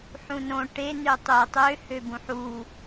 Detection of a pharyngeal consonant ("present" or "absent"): present